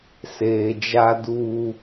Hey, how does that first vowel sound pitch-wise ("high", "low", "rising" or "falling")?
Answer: low